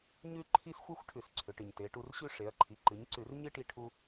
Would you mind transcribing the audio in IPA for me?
ɲ ʉ˥ ǃʰ i˥ s xʷ ɨ˥ xʷ ʈʰ ʉ˧˩˧ s ǀʰ ʏ˩˧ ʈ ɨ˩ ɲ t e˩˧ ʈ u˧ r ɕ ʉ˥ ʂ e˩˧ ɐ̯ ǃʰ i˩˧ ǃ ɨ˩˧ ɲ ǀ ʉ˧˩˧ r ɲ ɨ˥ ʈ i˧ ʈʰ u˧

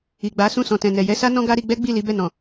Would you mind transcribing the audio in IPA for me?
i˨ ɡ͡b a˨˦ s ũ˦˨ s ɔ̃˨ t ɛ̃˨ n ɛ˨ j ɛ˧ s a˦ n ɔ̃˦ ɡ a˦ ɾ i˧ ɡ͡b ɛ˦ ɡ͡b i˦˨ l i˨˦ b ɛ˦˨ n ɔ̃˨

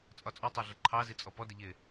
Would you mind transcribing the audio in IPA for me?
t͡sʼ ɒ t͡sʼ ɔ tˤ ɑ ɮ ə ǃʰ ɑ z i t͡sʼ ɔ p ɔ d ɪ ʎ ɪ

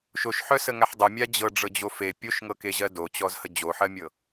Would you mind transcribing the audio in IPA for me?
ʃ o ʃ ħ œ s ə ŋ a ħ dˤ ə mʲ a d͡ʑ ɤ ɖ͡ʐ ɤ d͡ʑ o f e pʲ o ʃ ŋ ɤ k e ʑ ɜ d o t͡ɕ ɔ z h ə d͡ʑ o ħ ɜ mʲ ɤ

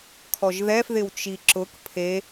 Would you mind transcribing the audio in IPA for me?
kʰ ɔ ʒ ð ɛ f ð ɪ w t͡ʃ i ǁ ʊ k pʰ e

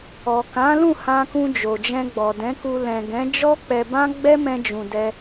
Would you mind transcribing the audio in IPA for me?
ɔ˨ k ã˨˦ l ũ˦˨ h ã˧ k ũ˧ d͡ʒ o˨ d͡ʒ ɛ̃˧ ɡ͡b ɔ˨ d ɛ̃˨˦ k u˧ l ɛ̃˨ ɡ ɛ̃˨˦ d͡ʒ ɔ˦ k͡p ɛ˧ b ã˦ ɡ͡b ɛ˦ m ɛ̃˧ d͡ʒ ũ˨ d ɛ˧

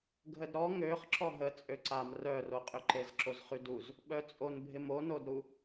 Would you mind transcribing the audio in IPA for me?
ɡʱ ə d ɾ ɔ ŋ ø χ ǁ ɔ ɦ ə t͡sʼ ø ǀ a m r œ r o qʼ ʏ ǃ e z ǁ o z χ y d u z | ɓ œ t͡sʼ o n bʱ ɪ m o n o d ɾ u

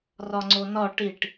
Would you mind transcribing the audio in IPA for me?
r ɒ ŋ͡ǀ o n ɒ ʈ i ʈ

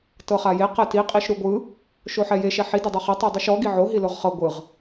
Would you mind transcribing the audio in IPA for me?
t ɤ χ a j e q ɛ t i qʼ i ʃ ɾ u ɡʷ ɯ | ʃ o ħ ɛ j e ʃ ɛ ħ i d e dˤ u χ i tˤ u dˤ i ʃ ɔ ɡ i ʕ o ɦ i l o ʁ χ ɤ ɡʷ ɯ ʁ

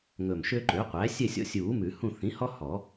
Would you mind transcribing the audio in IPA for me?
ŋ ɵ˨˩ m ʃ ø˦ ǃ ø˩˥ qʷ æ˩˥ sʲ ɛ˦˨ sʲ ɔ̰˦ sʲ uː˨˩˦ m ʉ˨˩˦ h ũ˦˨ θ ĩ˩˥ h ɔ˦ h ɔ˨˩˦

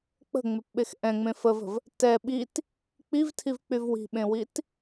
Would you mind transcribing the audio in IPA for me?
k͡p ə̤ ŋ͡m e p ɓ e x ʔ ɛ̃ ŋ͡m ẽ f ə v ə̤ v | t ɛ ɓ i t | k͡p i v tʰ i v k͡p y v w i̤ ɓ ẽ w i t

